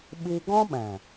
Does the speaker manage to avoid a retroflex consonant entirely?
yes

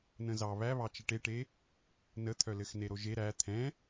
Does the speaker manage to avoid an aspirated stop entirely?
no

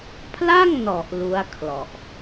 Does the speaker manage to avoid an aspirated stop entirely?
no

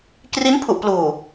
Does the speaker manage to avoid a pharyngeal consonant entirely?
yes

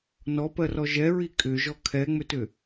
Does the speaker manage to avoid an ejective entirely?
no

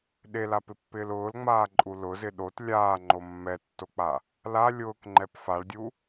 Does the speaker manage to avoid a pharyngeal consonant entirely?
yes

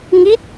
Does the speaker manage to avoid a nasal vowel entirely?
yes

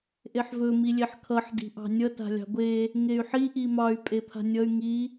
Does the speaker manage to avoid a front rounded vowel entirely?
no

